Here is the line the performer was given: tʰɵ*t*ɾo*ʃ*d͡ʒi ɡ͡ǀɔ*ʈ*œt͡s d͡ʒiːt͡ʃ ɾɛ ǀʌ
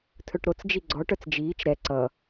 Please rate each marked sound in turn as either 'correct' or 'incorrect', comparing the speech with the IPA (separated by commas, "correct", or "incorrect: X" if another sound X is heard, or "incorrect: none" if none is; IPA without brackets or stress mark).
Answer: incorrect: ʈ, incorrect: t͡s, correct